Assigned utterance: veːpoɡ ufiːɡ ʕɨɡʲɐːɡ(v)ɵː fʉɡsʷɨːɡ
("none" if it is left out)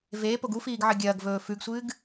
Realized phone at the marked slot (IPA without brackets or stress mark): v